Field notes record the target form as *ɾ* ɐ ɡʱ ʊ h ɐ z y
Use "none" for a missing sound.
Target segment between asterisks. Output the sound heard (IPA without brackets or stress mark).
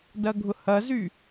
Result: d